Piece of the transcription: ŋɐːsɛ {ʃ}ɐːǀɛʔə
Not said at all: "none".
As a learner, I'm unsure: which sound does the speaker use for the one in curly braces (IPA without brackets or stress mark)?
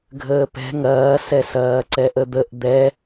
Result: s